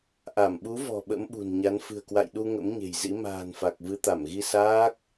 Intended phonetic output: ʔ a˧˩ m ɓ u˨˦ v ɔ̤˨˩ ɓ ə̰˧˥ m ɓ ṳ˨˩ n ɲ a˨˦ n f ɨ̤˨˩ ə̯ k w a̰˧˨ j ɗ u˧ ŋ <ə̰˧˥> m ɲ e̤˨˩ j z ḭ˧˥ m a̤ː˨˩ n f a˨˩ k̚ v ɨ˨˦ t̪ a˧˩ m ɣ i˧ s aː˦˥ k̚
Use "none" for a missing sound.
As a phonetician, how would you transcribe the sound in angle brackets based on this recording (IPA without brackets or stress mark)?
ə̰˧˥